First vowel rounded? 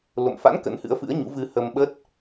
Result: yes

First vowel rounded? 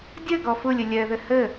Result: no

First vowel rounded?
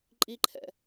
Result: no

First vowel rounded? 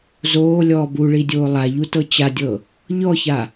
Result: yes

